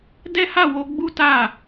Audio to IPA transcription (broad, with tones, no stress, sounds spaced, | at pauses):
d ɛ˦ h a˦˨ w o˨˦ ɡ͡b u˦ t a˦˨